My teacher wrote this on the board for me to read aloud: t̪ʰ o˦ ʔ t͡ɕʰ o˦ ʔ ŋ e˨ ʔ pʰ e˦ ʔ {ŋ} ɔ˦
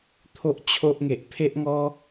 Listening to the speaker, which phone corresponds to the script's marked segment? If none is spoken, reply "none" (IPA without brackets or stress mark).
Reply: ŋ